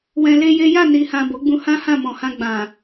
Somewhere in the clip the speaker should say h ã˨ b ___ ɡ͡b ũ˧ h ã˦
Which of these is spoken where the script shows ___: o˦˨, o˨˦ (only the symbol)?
o˨˦